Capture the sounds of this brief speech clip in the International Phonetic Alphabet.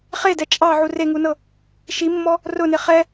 χ e d ɛ t͡ʃʼ ɑ ʕ u r e ŋ u n ɤ | ʃ i mː ɔ | r ʊ n e χ ɛ

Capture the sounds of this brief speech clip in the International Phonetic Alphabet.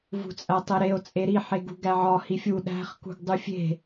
v ṳ t͡sʼ æ tˤ e ɾ e o̯ t͡sʼ e ɾ i ħ e ɡ ṳ ɡ æ ʕ ɒ h i fʲ u ɗ æ̤ χ k ṳ ɡ dˤ u fʲ e̤

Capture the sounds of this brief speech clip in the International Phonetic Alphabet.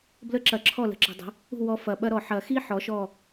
b l ə˦˥ ǁ ɐ˨˩˦ ǁʰ ɔ˥˩ l ə̤˧˩ ǁ ə̤˨˩˦ dˤ ə̤˩˥ | ṳ˥˩ w ɔ˧˩ f ɐ˨˩˦ ɓ ɐ˦˥ ɾ ɔ˧˩ ħ ɐ˨˩˦ x i˦˥ ħ ɔ˩˥ ʃ ɔ˥˩

